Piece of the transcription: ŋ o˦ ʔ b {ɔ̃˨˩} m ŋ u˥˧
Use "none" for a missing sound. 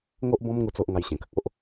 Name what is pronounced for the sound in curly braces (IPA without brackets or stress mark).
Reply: ɔ̃˦